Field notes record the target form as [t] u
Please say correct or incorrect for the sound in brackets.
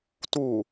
correct